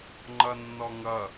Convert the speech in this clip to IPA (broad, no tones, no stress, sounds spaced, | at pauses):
ŋ͡ǃ ʌ nː ɔ ŋ ʌ